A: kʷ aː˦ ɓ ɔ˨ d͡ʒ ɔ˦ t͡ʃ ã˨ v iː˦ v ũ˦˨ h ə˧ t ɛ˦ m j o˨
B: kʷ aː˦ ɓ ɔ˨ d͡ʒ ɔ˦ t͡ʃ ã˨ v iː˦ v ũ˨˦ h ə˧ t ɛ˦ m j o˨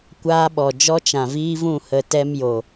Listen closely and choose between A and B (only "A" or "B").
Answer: A